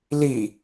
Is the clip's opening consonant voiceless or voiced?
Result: voiced